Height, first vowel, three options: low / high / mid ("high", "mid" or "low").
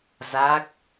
low